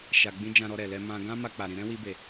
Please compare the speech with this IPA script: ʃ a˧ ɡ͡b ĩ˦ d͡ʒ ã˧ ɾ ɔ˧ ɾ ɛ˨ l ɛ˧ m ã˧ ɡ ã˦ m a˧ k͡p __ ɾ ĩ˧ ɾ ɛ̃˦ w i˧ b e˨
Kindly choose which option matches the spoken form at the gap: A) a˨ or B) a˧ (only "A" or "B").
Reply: A